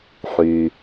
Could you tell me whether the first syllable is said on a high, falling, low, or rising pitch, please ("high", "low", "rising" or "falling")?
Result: low